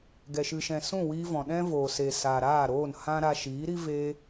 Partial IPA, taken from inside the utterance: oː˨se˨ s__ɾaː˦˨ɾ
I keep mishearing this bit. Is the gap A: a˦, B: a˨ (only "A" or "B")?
B